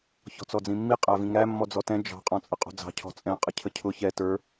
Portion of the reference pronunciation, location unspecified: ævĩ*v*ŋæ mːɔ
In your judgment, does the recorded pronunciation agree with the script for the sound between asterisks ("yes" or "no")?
no